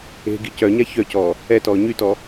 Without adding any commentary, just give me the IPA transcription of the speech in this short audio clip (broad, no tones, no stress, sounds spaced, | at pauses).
e̤ ɡ i c œ ɲ a ç œ c ɔː | ɛ t ɔː ɲ y t ɔ